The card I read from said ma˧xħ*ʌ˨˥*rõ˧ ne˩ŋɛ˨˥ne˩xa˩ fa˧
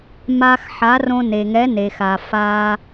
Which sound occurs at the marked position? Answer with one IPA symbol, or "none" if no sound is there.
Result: a˨˥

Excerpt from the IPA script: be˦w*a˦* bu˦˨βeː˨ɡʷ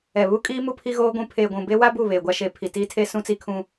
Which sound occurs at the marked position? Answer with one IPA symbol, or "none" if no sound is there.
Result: a˦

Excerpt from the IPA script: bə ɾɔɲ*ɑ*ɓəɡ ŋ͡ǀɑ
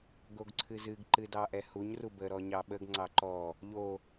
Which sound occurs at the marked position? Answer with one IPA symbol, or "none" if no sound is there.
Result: ɑ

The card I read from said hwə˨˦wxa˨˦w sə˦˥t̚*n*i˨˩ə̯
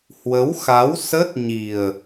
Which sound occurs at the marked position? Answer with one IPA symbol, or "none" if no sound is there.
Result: ɲ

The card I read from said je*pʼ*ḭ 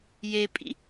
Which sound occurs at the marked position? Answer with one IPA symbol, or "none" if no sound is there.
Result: pʼ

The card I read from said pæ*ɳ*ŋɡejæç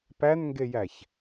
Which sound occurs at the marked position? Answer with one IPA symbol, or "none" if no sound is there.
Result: n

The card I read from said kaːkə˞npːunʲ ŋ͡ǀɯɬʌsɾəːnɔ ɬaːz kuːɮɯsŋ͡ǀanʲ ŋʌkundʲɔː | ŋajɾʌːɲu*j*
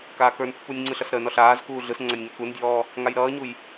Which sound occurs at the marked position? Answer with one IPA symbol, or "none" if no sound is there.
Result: j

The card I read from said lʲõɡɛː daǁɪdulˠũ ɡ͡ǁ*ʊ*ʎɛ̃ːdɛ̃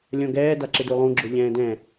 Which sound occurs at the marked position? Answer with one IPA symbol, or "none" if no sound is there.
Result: ʊ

